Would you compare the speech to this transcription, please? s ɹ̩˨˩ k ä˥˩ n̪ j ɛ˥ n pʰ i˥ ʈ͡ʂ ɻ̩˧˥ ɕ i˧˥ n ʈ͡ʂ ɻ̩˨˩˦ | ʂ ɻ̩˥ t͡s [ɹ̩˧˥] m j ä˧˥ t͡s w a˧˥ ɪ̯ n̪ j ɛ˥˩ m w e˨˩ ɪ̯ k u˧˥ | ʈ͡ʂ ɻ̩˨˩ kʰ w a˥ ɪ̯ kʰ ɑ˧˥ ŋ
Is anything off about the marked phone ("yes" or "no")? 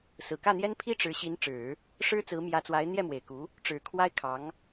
no